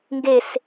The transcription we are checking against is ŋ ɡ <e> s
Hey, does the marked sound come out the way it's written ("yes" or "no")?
yes